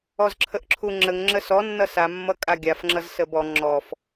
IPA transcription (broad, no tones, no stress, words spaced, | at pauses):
ɔzǁʰəʔǁʰuŋ͡ǁəŋ ŋ͡ǁəsɔ nːʌsa mːʌkʼaɡʲafŋ͡ǁʌz səbɔ ŋ͡ǁɔf